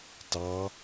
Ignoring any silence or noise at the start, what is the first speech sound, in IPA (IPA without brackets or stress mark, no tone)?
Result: t